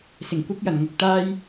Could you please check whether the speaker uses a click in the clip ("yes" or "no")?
no